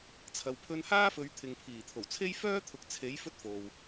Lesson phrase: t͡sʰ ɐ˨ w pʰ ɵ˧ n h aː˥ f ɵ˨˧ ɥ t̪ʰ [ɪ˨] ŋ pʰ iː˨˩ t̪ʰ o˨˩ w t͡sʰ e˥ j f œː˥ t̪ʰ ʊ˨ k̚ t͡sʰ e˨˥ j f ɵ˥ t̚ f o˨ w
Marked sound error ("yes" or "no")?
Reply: no